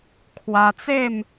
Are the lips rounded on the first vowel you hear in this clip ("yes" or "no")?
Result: no